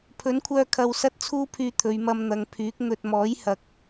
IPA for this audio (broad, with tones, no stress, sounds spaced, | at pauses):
pʰ ɵ˨˥ n kʷʰ œː˧ kʰ ɐ˨ w s ɐ˥ t̚ t͡sʰ uː˥ pʰ yː˧ t̪ʰ ɵ˨˧ ɥ m ɐ˧ m n̪ ɐ˨˧ ŋ pʰ yː˨˥ k̚ n̪ ɵ˧ t̚ m ɔː˨˥ j h ɐ˨ k̚